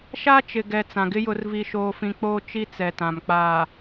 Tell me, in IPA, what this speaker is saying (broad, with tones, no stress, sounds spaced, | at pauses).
ʃ a˦ t͡ʃ ɪ˨ ɡ ɛ˨ t͡s ã˨ ɡ ɪ˦ j ʊ˨ r v i˨ ʃ oː˨ f ĩ˨ k͡p oː˦ t͡ʃ i˦ t͡s ɛ˨ t ã˨ m k͡p aː˨